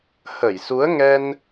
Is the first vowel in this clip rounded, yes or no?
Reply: no